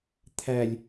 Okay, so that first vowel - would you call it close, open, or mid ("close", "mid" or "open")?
open